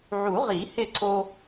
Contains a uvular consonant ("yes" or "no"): yes